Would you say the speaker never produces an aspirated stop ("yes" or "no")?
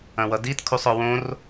no